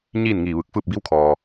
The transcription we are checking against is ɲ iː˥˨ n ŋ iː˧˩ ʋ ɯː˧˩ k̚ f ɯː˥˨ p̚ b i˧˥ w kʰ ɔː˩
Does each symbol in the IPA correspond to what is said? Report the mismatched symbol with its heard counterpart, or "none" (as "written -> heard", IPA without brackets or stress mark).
none